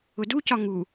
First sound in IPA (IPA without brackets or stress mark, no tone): ʊ